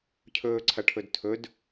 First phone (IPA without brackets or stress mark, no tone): cʰ